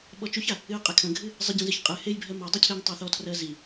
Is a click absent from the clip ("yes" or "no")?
yes